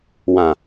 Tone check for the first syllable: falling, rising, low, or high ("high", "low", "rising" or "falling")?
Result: low